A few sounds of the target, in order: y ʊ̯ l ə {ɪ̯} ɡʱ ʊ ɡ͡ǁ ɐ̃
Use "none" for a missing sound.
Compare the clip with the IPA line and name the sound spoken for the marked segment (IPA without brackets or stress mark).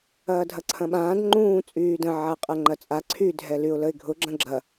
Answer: ɪ̯